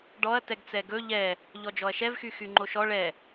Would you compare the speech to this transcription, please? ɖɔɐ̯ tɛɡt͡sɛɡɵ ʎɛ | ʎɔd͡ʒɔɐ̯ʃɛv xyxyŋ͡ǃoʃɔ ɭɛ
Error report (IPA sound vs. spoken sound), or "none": none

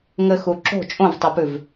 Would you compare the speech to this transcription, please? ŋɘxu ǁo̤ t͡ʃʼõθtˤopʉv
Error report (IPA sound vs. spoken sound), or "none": θ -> v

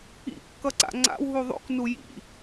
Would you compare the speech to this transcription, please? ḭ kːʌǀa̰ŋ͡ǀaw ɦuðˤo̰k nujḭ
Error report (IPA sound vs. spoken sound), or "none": a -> a̰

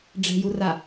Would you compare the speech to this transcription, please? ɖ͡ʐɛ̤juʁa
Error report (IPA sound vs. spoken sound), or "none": ʁ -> r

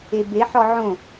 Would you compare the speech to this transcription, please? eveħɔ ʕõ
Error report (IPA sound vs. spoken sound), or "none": v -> b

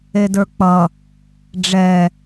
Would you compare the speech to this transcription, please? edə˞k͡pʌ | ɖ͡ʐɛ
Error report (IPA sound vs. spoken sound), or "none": none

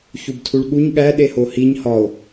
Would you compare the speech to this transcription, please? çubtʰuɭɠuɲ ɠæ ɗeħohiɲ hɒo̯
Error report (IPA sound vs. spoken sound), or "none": ħ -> h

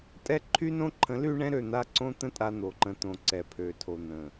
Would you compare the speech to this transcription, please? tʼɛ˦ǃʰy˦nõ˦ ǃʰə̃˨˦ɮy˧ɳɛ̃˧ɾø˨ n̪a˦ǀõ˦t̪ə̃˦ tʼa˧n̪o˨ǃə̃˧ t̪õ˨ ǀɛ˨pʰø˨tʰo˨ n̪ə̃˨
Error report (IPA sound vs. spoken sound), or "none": ɮ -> l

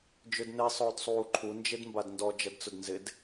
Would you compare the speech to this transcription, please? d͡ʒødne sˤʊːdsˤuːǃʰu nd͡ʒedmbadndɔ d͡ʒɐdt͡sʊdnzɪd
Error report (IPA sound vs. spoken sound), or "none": none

